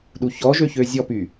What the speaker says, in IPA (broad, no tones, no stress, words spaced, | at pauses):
ɗuçɔʒø çøzʲɔpy